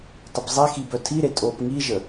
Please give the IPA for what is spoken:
tˤ ə b zˤ e x i b œ tʰ i ɾ e tʼ o p ŋ i ʒ ə

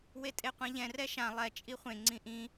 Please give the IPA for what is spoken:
w e tʼ e qʷ ɛ̃ ʎ ɛ̃ r ɛ ʃ ã lˠ ɛ t͡ʃʼ i χʷ ẽ ŋ͡ǀ ĩ ʔ ĩ

